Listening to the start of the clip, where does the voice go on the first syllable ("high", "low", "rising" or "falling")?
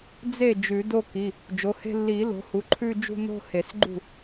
falling